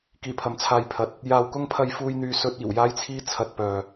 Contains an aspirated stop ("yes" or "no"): yes